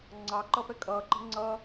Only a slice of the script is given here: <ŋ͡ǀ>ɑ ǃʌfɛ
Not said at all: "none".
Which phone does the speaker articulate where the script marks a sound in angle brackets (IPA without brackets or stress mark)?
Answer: ŋ͡ǀ